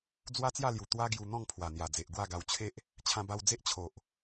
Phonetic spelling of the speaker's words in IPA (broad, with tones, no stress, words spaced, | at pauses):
d͡zwa˦t͡sja˥˧lju˨˩ t̪wa˦ɡju˧ n̪ɔ̃˥˧ŋpʰwa˨˩n̪ja˨˩d͡ze˨ʔ ɡwa˥˧ɡa˧w t͡ɕʰe˦ʔ | t͡ɕʰã˧ba˧wd͡ze˦ʔ t͡ɕʰo˨ʔ